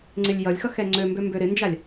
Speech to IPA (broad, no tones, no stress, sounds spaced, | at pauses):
ŋ͡ǀ ɪ lʲ j ʌ lʲ x ʌ x ɛ ŋ͡ǀ ø m b ø m b ø ɾ ɪ n d͡ʒ a lʲ